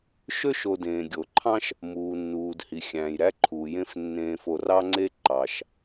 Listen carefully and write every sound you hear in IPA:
ʃø˥ʃo˨dẽː˩ ɡʲo˩ǃʰɑ̃˥ʃ | muː˩nːuː˩d hi˩xʲæ̃ː˩jɾæ˥ ǃʰuː˩jẽ˦f nːẽː˨fo˨rɑ˦ŋ͡ǀe˦ ǃɑ˩ʃ

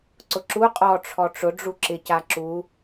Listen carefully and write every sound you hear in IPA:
ǀʊǁu qʼɔ ʈ͡ʂʰɔʈ͡ʂʊ ɖ͡ʐuǁɪca ǁu

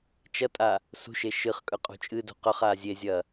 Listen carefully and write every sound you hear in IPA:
t͡ʃɐtʼa | sṳʃe ʃɨχ kʼɵqʼṳt͡ʃʼɨdṳ qɵχa zʲezʲɐ

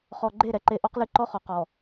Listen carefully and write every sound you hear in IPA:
χɔ˨ɡ͡ǃe˦˨ ɾɛ˨ǃe˦ ʔɔ˦qlɨ˦ ǃɔ˦χɔ˨ qɔ˨

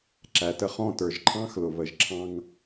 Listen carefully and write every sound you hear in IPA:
ǁæ˨tə˧ χɔ̃˦˨tə˞˨ʒ ǃʰɑ̃˦xlʊ˨βə˨ʒǁʰɑ̃˧ŋ

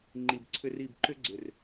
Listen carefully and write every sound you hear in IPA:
ŋ͡ǃi˨bǀʰʏ˦ri˦˨b ǃʏ˦ɡ͡ǀʏ˨r

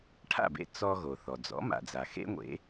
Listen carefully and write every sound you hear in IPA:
ʈʰa̰˥˩bḛ˧ t͡sɔ˧ ɣo˩θɔ˩d͡zɔ̰˩˥ ma̰˩d͡za˩ xḛ˥ŋʷḛ˩˥

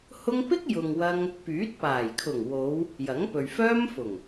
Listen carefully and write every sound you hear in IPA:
hʊ˥ŋ pɪ˥k̚jʊ˨ŋ wɐ˥ŋ | pyː˨˥t̚paː˨˩jkʰʊ˨˩ŋ wo˨˧w | jɐ˨˥ŋpɵ˨ɥfœː˥mfʊ˨˩ŋ

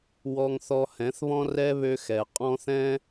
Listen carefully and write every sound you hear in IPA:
wɔ˦ŋθɔ˦ hɛ̃˨˦θβɔ̃˦rɛ˦ βø˦xɛ˨ qʼɔ̃˦θɛ̃˦

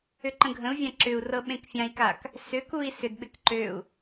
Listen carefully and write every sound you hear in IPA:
ʏǃə̃ɡʱə̃u̯vʲã ǁʏu̯ rɤɓẽkfʲãi̯kak | sʏkui̯ sʏdɓɪk ǃøu̯

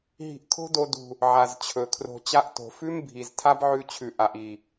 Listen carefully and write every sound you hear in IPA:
ɦi̤˧ʔkʰo̤˦ do˧dṳ˨ | ʕa˨zt͡ɕʰɵ˨kʰro̤˧ t͡ɕa˧ʔto̤˨fʉ˦m bʱi˨z tʰa˦bʕʉ˧t͡ɕʰʉ˨ ʔa˨ʔi˨

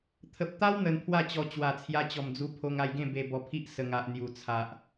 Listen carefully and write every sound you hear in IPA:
t̪ʰə˨p̚t̪a˦w n̪ə˧npʰwa˥˧ t͡ɕɔ˧ t͡ɕwa˨˩t͡sʰja˧t͡ɕɔ˨˩md͡zu˧ pʰo˧ŋa˧jɡẽ˥˧ be˧ bɔ˧pʰi˦ʔ sə˨˩ŋa˨ʔ n̪ju˨˩t͡sʰa˨ʔ

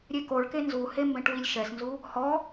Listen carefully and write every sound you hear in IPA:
ɾʲekoɭke nzuhe mbɛ̃ʈwilʲʃɛsnzu | hɔ

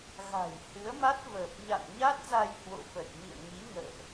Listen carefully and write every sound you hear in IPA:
ɣa̤˨˩jhɨ˨˦ə̯ma˦˥t̚ vəː˨˩p̚ɲa̰˧˨n ɲa˦˥t̚za˧j hwo̰˧˨fə˨˩t̚mḭ˧˨ə̯ ŋi˨˦ŋə̰ː˧˨ʔ

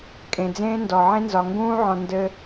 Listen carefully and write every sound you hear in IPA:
kʼẽ˨d͡zẽː˦ndɔ˨ ʕẽ˦nzɒ˨ ŋɡũː˦ʕɔ̃˨ ndɘ˦

